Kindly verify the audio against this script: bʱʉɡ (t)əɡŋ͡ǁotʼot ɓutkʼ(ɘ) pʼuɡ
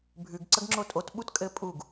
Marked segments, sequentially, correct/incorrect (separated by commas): incorrect, correct